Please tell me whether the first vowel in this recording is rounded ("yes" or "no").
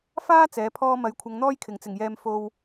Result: no